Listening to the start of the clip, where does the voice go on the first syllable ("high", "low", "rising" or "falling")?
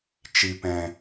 low